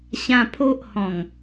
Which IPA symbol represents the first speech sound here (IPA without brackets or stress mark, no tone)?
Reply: ɕ